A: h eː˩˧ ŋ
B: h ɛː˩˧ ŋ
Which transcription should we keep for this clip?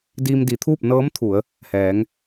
B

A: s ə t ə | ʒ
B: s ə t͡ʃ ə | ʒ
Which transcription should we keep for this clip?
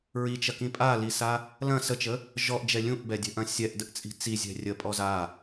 B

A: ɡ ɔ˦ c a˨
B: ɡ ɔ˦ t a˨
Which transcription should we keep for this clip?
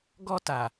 B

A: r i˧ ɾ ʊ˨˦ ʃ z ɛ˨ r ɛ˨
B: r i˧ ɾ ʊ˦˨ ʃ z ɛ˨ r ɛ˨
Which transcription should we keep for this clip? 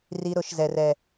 A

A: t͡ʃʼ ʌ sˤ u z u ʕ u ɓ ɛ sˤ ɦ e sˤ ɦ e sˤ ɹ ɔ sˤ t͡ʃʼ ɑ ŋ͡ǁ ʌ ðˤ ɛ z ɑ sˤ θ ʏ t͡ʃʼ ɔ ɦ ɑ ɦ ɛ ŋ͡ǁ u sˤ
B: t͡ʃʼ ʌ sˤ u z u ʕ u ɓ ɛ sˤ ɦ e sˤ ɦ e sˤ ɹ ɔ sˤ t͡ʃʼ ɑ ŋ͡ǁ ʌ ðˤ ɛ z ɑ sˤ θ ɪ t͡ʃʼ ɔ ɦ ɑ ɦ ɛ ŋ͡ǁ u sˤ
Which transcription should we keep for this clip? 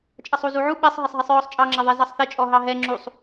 B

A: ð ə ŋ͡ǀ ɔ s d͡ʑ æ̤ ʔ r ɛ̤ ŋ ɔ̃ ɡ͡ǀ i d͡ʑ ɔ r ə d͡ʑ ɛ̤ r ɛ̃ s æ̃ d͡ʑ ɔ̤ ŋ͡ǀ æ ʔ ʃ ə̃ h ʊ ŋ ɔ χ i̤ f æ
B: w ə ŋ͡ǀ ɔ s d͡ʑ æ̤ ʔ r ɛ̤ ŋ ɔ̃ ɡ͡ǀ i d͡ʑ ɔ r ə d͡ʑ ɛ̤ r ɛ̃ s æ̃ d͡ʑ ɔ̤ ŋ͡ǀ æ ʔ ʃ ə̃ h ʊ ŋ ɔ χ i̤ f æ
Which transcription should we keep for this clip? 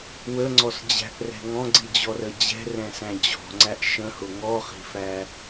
B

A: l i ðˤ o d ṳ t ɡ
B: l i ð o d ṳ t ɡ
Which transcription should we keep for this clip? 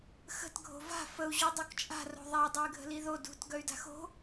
B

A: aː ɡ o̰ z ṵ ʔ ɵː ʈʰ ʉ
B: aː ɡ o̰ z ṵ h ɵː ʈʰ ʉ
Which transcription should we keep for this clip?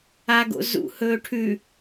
B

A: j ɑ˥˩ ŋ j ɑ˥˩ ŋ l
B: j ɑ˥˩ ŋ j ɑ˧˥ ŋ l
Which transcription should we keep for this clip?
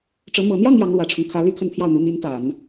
B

